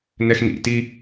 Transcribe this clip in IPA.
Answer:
n ɛ x n ḭ t i

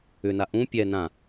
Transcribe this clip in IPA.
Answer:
ʏ n a ʔ ũ pʲ ɛ n ã

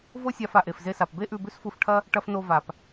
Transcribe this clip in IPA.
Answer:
v o˥ sʲ a˧ f a˩ ʔ e˩ f z e˧ s a˩ p b e˥ ʔ ʉ˧ b ʉ˥ s f u˧ f ʈʰ ɐ˥ | ʈ ɐ˧ f n o˧ v a˩ p

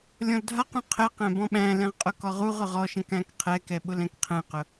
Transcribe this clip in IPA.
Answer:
lʲ ɔ̃ l dʱ a q ũ qʰ ɛ q æ̃ b ɔ̃ ɓ æ̃ l ɛ̃ ʁ qʼ ʊ k ɔ ʁ u ʁ ʊ ʁ ɔ ʃ ɛ̃ k æ̃ k qʰ ɛ k ɛ ɓ ʊ l ɛ̃ k qʰ ɛ̃ q ʊ

